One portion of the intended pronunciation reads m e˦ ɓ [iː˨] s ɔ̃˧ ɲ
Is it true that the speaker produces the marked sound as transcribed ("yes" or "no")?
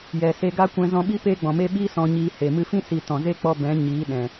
no